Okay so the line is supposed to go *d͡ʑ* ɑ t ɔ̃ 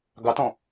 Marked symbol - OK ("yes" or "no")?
no